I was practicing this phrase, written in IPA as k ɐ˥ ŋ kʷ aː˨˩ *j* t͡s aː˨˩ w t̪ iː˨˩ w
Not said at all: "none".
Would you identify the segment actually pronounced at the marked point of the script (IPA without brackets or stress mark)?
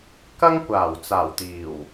w